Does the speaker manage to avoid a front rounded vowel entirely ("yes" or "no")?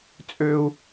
no